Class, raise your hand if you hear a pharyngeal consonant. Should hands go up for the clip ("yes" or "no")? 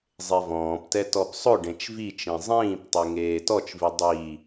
no